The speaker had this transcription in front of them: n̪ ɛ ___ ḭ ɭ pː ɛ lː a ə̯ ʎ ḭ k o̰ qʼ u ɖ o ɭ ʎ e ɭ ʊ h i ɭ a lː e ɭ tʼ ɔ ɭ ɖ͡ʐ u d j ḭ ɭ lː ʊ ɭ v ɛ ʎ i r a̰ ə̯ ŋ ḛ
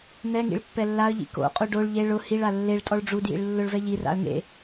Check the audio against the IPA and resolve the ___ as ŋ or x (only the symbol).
ŋ